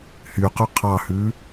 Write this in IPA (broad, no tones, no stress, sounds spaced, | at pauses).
h y q ø qʰ ɑ h ʉ